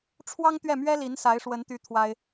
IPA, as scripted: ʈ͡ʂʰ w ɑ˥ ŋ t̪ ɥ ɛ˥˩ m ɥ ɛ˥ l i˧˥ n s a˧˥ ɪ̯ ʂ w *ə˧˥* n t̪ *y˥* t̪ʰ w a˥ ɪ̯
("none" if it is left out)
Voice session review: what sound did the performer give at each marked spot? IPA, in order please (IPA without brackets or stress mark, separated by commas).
ə˧˥, y˥